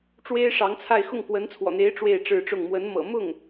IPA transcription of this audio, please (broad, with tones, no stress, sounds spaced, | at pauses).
ʈ͡ʂ w e˥ ɪ̯ ʂ ɑ˧˥ ŋ t͡sʰ a˥˧ ɪ̯ x ʊ˥˩ ŋ k w ə˧˥ n t͡sʰ w ɔ̰˨˩ n̪ e˧˥ ɪ̯ ʈ͡ʂ w e˥˧ ɪ̯ ʈ͡ʂ ɻ̩˥˧ ʈ͡ʂ ʊ˥˩ ŋ m w ə˧˥ n m ɤ̰˨˩ m ʊ˥˩ ŋ